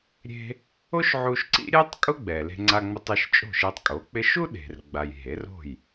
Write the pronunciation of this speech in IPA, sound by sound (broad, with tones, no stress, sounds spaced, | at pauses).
ɾʲ e̤˧ | o˥ ʃ ʕ u˧ ʃ ǀ ḭ˥ ɾʲ ɛ˥ tˤ kʼ ʊ˥ ɡ͡b ɛ˩ l e̤˧ ŋ͡ǀ a˧ ŋ͡m ʊ˧ tˤ e˧ ʃ t͡ʃʼ o̤˥˩ ʃ e˧ tˤ kʼ o˩˥ k͡p ɪ˧ ʃ u˥ ɗ e̤˩ r ɡ͡b a˩ j ɦ e˩˥ r o̤˥˩ j